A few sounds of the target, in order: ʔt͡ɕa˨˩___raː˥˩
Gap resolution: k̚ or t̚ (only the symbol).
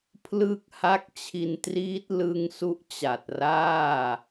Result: t̚